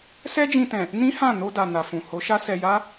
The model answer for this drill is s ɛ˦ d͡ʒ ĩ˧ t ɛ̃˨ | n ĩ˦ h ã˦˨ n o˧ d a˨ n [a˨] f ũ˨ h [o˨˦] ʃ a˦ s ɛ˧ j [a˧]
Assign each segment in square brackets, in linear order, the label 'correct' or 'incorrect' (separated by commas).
correct, correct, incorrect